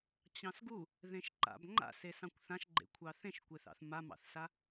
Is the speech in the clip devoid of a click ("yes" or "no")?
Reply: no